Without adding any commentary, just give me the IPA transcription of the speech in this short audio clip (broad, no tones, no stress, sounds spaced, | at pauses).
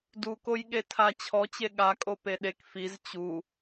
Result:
d u k o j ɠ e tʰ a t͡ɕʰ ɔ t͡ɕ e ɠ a kʼ o p e ɗ e k f i z t͡ɕ u